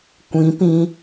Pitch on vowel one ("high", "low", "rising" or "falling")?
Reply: rising